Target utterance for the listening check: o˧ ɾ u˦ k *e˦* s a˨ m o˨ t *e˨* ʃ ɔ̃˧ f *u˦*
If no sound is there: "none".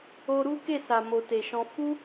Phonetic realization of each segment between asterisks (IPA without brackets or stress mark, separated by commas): e˦˨, e˨, u˦